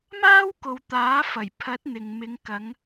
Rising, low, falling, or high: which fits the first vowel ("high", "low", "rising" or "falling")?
high